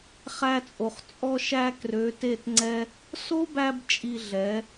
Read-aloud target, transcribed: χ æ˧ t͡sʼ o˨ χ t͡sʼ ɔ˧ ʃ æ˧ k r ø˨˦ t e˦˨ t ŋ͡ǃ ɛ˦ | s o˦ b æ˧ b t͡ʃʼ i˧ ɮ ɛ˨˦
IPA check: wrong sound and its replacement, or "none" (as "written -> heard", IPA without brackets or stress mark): ŋ͡ǃ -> ŋ͡ǀ